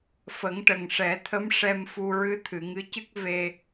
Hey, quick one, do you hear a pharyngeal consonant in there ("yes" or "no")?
no